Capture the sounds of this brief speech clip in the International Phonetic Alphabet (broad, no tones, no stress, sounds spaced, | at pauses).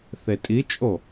θ e tʼ i t͡ʃʼ o